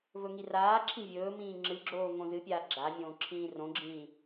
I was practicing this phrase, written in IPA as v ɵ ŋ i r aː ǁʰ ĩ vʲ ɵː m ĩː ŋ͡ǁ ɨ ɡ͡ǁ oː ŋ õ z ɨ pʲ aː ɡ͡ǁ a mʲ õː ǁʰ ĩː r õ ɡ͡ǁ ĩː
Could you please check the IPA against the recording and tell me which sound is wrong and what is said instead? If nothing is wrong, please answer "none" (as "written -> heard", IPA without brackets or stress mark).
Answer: none